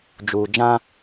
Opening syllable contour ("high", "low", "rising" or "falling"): low